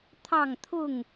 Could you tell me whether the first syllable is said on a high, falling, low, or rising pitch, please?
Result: falling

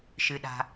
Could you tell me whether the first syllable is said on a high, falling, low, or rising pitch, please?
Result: low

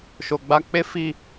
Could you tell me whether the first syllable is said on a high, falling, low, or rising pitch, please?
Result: low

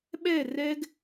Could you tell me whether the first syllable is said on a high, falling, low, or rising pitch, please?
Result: falling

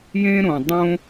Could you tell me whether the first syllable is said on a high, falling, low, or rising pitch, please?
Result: high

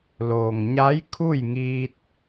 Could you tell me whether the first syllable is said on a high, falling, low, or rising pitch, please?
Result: low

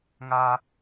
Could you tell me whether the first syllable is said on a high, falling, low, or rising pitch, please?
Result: high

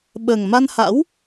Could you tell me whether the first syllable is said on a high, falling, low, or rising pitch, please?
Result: low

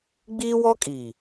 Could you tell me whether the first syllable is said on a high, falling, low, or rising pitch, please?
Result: high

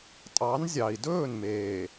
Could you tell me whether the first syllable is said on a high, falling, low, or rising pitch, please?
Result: rising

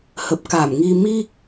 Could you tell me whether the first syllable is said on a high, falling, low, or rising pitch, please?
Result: low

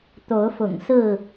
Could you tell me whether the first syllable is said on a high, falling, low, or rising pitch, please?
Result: rising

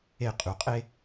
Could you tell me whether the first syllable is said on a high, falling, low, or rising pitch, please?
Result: falling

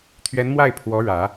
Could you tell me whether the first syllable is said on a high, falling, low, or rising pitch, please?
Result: rising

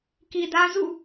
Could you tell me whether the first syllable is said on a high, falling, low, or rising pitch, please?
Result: low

